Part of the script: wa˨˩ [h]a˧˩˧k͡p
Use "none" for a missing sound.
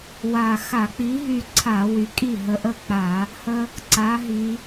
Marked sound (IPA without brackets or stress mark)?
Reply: x